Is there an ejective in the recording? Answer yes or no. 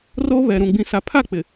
no